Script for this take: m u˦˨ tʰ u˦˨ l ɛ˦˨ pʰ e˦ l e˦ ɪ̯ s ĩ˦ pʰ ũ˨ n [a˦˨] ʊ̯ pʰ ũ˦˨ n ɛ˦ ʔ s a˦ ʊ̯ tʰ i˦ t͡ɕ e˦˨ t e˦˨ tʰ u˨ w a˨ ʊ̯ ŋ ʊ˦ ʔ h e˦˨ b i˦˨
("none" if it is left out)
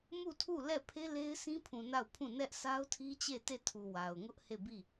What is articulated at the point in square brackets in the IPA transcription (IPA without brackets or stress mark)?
a˦˨